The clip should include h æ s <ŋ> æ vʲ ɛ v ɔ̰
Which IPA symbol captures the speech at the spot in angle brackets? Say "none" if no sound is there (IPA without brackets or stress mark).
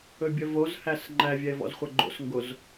ŋ͡ǃ